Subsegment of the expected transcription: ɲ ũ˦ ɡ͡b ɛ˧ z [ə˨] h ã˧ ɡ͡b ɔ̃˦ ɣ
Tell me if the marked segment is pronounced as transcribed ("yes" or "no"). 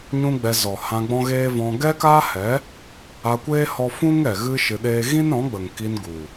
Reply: no